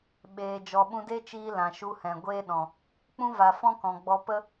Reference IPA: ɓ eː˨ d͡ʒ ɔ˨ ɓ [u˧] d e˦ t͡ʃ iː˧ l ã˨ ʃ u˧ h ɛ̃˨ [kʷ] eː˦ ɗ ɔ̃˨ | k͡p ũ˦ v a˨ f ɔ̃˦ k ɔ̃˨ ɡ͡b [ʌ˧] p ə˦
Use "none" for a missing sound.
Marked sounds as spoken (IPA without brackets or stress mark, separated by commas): ũ˧, ɡʷ, ɔ˧